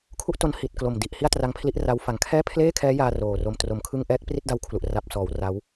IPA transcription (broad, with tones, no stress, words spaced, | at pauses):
kʰu˥˩ʔto˦˥n hi˨˩t̚ klo˨˩mdi˨˩ʔ hi˥˩a̯tra˦˥ŋpʰli˦˥ʔ ra˦˥w fa˨˩ŋkʰɛː˥˩ pʰleː˥˩kʰɛː˦˥jaː˧ roː˨˩ro˧m tro˦˥mkʰɯ˥˩ŋ ʔɛː˦˥k̚ pri˥˩t̚da˦˥wkʰlu˨˩ʔ ra˨˩p̚sɔː˩˦w ra˦˥w